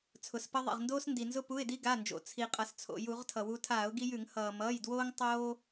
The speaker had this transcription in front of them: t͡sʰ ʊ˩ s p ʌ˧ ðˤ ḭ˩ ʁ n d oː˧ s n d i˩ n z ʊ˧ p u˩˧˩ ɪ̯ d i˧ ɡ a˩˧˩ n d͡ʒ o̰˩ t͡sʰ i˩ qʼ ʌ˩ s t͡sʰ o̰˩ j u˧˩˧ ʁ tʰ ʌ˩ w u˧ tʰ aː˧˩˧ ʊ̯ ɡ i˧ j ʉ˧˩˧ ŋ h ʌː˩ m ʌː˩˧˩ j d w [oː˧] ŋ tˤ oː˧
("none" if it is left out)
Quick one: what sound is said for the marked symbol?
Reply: oː˧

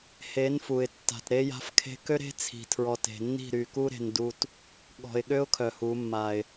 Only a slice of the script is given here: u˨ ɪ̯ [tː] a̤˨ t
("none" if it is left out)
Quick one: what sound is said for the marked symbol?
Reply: tː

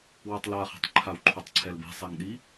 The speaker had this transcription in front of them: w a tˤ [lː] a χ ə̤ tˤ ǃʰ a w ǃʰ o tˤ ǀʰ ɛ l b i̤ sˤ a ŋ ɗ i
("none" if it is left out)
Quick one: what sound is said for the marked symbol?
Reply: l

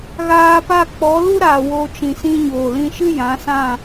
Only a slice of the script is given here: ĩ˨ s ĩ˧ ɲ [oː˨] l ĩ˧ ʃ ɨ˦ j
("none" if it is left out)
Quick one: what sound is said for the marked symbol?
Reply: oː˨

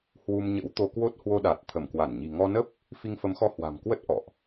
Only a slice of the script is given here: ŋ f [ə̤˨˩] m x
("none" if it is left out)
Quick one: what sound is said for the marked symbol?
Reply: ə˨˦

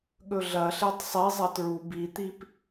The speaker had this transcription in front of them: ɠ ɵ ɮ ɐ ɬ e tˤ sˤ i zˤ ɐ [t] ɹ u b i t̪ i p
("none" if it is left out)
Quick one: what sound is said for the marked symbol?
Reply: t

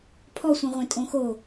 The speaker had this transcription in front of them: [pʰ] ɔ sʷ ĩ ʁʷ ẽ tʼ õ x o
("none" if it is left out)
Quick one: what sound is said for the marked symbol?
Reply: pʰ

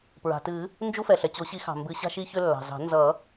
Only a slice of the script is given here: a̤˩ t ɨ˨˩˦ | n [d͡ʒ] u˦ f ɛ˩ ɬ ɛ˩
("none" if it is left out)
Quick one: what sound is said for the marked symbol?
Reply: d͡ʒ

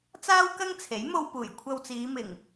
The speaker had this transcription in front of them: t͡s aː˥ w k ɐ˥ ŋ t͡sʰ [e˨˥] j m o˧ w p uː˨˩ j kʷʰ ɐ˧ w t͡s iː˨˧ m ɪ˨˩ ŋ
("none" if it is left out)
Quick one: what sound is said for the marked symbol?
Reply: e˨˥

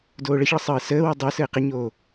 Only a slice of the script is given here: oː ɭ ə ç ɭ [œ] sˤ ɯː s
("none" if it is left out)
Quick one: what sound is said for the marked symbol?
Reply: ə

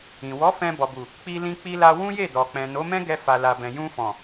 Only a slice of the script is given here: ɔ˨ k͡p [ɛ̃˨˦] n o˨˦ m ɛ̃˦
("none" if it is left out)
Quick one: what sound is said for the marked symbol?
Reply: ɛ̃˨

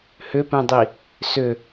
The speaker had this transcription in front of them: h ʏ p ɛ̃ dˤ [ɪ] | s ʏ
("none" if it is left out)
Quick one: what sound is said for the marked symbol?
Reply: i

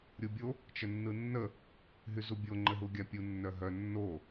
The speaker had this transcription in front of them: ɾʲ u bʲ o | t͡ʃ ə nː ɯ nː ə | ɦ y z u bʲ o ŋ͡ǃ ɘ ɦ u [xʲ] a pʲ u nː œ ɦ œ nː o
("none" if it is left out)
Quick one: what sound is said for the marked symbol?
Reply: ɡʲ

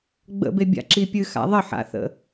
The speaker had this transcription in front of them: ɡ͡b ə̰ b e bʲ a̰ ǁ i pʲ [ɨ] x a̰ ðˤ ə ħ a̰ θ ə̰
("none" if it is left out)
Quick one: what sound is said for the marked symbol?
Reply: ɨ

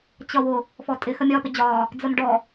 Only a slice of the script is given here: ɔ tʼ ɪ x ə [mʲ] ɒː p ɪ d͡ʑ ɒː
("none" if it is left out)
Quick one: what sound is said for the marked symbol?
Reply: mʲ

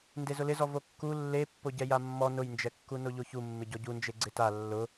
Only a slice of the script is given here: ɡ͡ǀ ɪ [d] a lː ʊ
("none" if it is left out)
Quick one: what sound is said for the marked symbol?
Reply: t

